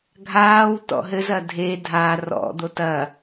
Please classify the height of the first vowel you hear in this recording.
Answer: low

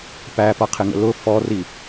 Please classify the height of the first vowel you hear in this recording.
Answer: low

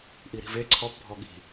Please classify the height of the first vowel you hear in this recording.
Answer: high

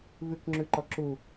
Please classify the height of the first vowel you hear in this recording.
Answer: high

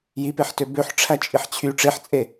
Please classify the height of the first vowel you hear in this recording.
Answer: high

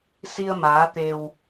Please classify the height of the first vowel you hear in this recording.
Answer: high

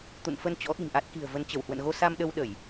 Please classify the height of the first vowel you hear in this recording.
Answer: high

